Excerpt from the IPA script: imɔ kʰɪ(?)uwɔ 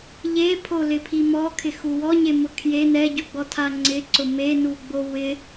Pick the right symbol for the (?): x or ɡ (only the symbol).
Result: x